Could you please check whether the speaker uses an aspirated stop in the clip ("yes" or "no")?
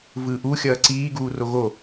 no